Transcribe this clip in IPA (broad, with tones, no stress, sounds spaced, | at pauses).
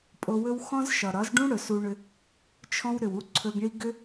pʼ o˧ w ɵ˦ w x ɔ̃˦ z ʃ ɒ˨ ɾ ɒ˨˦ z ɖ ũ˦ ɽ ɵ˨ s u˧ ɳ ʏ˧ | t͡ʃʰ ɔ̃˦ w ɾ ʏ˨ w u˦ ǀʰ ɵ˧ ɡ ɳ i˦ ɡ ʏ˦